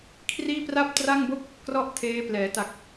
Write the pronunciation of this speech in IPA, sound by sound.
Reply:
kʰ r iː˥˩ p r a˥˩ p̚ t r a˥˩ ŋ b o˥˩ k̚ | k r ɔ˥˩ ʔ tʰ eː˦˥ p l ɛː˩˦ t a˨˩ k̚

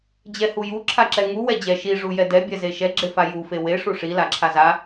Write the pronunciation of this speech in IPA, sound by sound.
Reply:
d͡ʑ ɛ h u j u ǁʰ a ǁ ɛ ŋ u w ɛ d͡ʑ ɛ ʃ i ʐ u j ɛ d ɛ bʲ ɛ z e ʃ ɛ ɡ͡ǁ e f a j u f e w e ʂ u ʂ i l a ǁʰ a z a

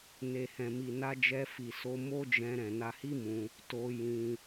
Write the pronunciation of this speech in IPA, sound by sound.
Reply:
n e˨ h ɛ̃˨ m i˨ n a˧ d͡ʒ ɛ˧ f i˨ s o˧ m o˦ d͡ʒ ɛ̃˧ ɾ ɛ̃˨ n a˧ h i˦ m ũ˧ | t o˧ j ĩ˧

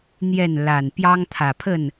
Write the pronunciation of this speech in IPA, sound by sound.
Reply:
n̪ j ɛ˥˨ n l a˨˩ n p j ɑ˦ ŋ t̪ʰ ä˨˩ pʰ ə˥˨ n

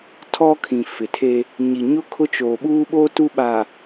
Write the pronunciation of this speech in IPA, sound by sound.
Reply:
tʰ ɔ˦ kʰ ĩ˨ f ɪ˨ tʰ e˦ | ɲ i˨ ɲ ʊ˦ kʰ ʊ˦ t͡ʃ oː˨ ɓ uː˦ ɓ oː˦ t u˦ ɓ aː˨

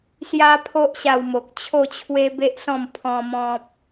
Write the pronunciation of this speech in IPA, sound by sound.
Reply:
s j a˦ pʰ o˦ ʔ ɕ a˧ w m o˨ k̚ t͡ɕʰ o˥˧ t͡ɕʰ w e˦ b e˦ ʔ s ɔ̃˥˧ m pʰ ɔ̃˧ m ɔ̃˦ p̚

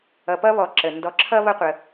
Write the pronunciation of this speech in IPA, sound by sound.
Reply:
ʌ˨ p ʌ˥ β ɔ˨ ǁ ə˩ n d ɔ˨ ǁʰ ʌ˥ β ʌ˦ qʷ ə˨

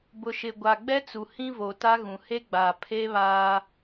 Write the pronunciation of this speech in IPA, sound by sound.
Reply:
b ʊ˨ ʃ ɪ˨ ɡʷ a˨ ɡ͡b ɛ˦ t͡s u˨ h ĩ˦ v o˨ t a˦ ɣ ũ˨ h e˦ ɡ͡b a˨ pʰ e˦ β aː˦

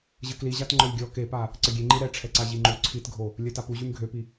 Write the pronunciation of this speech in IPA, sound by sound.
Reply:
ʑ ə k l i ʑ a t ŋ͡ǃ ɔ lʲ ɡʲ ɔ k e p a | ǀ ə ɡʲ e ŋ͡ǃ i ɾ ɛ ʈ͡ʂʰ ɛ ǀ a ʑ i ŋ͡ǃ u ǀʰ i t ɡʱ o | lʲ œ t a p u ʑ y m ɡʱ ø p i

